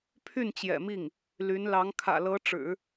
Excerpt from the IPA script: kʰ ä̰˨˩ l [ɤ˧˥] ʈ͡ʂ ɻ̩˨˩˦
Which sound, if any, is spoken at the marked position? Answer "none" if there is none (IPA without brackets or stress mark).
ɤ˧˥